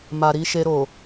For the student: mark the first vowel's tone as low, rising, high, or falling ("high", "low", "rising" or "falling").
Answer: low